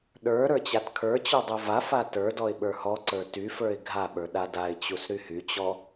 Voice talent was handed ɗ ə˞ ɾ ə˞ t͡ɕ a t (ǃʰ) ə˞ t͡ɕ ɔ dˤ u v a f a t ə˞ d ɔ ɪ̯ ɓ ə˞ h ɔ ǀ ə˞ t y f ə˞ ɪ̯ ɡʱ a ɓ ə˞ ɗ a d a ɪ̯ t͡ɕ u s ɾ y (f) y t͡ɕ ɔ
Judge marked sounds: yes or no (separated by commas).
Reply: no, no